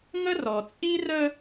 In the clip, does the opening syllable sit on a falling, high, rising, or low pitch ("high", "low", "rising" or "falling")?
high